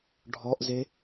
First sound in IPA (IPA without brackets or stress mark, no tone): ɖʱ